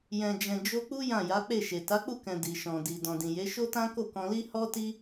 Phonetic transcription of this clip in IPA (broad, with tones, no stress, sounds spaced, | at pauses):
j ɛ̃˨ d͡ʒ ɛ̃˨ d͡ʒ o˧ k͡p u˦ j ã˦˨ j a˨˦ k͡p e˦˨ ʃ e˨ t a˨˦ k͡p u˦˨ k ɛ̃˨ d i˨ ʃ ɔ̃˨ d i˨ d ɔ̃˨ d ĩ˨ j e˨˦ ʃ o˦ t ã˦ k o˦˨ k ɔ̃˧ l i˦ h ɔ˦ t i˦